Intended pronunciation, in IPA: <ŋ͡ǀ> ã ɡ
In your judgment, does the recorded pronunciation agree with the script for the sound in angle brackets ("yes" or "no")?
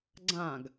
no